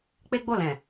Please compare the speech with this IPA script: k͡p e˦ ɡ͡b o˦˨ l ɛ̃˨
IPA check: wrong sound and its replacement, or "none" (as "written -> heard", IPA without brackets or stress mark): none